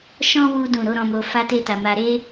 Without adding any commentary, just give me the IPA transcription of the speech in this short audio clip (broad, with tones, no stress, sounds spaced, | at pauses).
ʃ ɔ̃˦ w u˦ d ũ˦˨ ɾ o˨˦ ɾ ɔ̃˧ m o˧ f a˦ t e˦ t a˧ m a˧ ɾ e˦